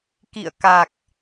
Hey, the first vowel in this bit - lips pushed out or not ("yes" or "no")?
no